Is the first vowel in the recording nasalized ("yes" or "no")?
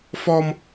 no